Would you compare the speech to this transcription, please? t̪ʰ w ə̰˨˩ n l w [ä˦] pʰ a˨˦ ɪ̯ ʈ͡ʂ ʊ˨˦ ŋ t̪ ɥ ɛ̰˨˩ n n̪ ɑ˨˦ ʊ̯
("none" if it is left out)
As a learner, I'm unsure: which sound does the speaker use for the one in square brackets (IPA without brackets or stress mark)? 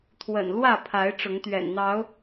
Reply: ä˥˨